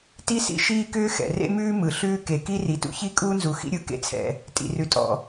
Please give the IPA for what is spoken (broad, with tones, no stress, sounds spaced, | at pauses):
t i˥ s ḭ˥ ʃ iː˥ k ʏː˥ x ɛ̰˩ r ḛ˥ m ʉː˥ m ɯ˩ ɬ ʉː˥ k e˩ k i˥ r i˩ t ṵ˥ ç i˥ kʼ uː˥ n z u˩ x ḭ˥ ɾʲ ɯ˩ k ḛ˥ t͡sʰ ɛ̰˩ | tʼ ḭ˩ r ʉ˩ tʼ ɔ̰˩